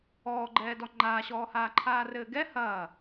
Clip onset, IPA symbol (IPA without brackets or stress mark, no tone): ɔː